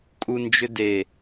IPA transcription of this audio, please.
kʼ u n d͡ʒ ʏ d e

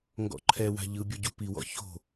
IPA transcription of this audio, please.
ŋ ɡ ɔ̰ ǃʰ ɛ w a̤ ʎ ɯ bʲ o ɟ u p i w ɔ̰ ç o̤

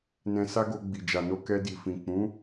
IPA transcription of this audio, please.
n ɛ̃˧ s a˦ ɡ o˧ ɡ͡b i˨ d͡ʒ a˨ n o˧ k ɛ˧ d i˨ f ĩ˨ k͡p ũ˨˦

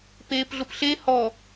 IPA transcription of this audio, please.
p eː p ɮ ʊ p ɬ e h ɔ

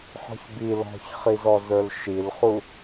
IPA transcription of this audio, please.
ħ ɔ̤ ç b i l ɔ̤ ç χ i z ɔ z ə˞ l ʃ i l χ u

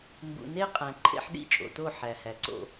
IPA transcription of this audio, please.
m b ṵ˨ n e˦ qʼ æ̃˨ ǃʰ ḛ˦ ħ ɗ ḭ˦˨ t͡ʃʼ o̰˨ t o˦˨ ħ æ˨ h æ˨ ǀ o̰˦

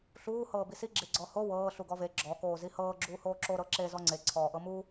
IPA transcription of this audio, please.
ɬ uː h ɤː b i s i ɡ͡ǁ e ɡ͡ǀ ɔ h o w ɤː ɬ u ɡ ɔ v e ɡ͡ǁ ɔ k oː z i h ɤː ɡ͡ǁ uː h oː ǁ o ɾ ɤ ǁ e z ɔ ŋ͡ǀ e ǀʰ ɔː ʔ ɤ m u

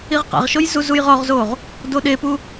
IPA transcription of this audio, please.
i ʁ q a̰ ʁ ʃ o j z u z u j ʁ ɔ ʁ z o ʁ | d o ɗ e p u

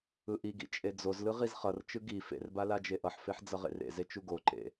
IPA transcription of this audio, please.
ɯ ʔ i ɡ ḭ t͡ʃʼ e d͡z o z l ɯ ʁ i z χ ʌ r t͡ʃ ɯ ɡ i f ḛ r b a l a d͡ʒ e ʔ ʌ ħ f e ħ d͡z ʌ ʁ ḛ r ḛ z e t͡ʃ u ɡ o ǃ ḛ

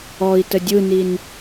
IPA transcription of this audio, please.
ɔ i̯ t ə dʲ ɯ n i n

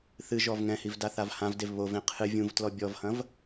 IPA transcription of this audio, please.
θ ɨ ʒ ɔ v ŋ ɛ̃ h i v d a θ a v h ã v d e v β o v ẽ qʰ ɨ vʲ ũ v t l ɔ bʲ ɔ v h ɐ̃ v

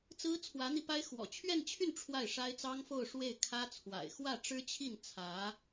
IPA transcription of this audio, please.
t͡s ɹ̩˥ t͡sʰ w ä˧˥ n̪ i˧ p a˥ ɪ̯ x w ɔ̰˨˩ t͡ɕʰ ɥ ɛ˥˧ n t͡ɕʰ y˥˧ n ʈ͡ʂʰ w a˥˩ ɪ̯ ʂ a˥ ɪ̯ t͡s ɑ˥ ŋ f o˥˧ ʊ̯ ʂ w e˥˩ ɪ̯ kʰ ä˥ t͡sʰ w a̰˨˩ ɪ̯ x w ä˥˩ ʈ͡ʂ ɻ̩˥ t͡ɕʰ i˥˩ n t͡sʰ ä˧˥

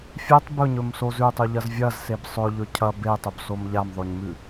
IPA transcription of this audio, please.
fʲ e tˤ b ɵ ɲ ɵ m s o z ʉ tˤ ʉ ʎ ɐ z vʲ ɐ z s e b sˤ ɵ ʎ ɵ cʰ ɐ b e tˤ ɵ b s o m ʎ a m ðˤ o ɲ m ʉ

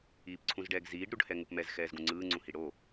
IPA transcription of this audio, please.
iː p ǀʰ ũ z ɖ ɛː ɡ z iː ɖ ɾ u ɖ h ɛ ŋ u p m ɛ z x ɛː z ɡ ũ ŋ͡ǀ ɯː ŋ͡ǀ ũ h i ɽ o

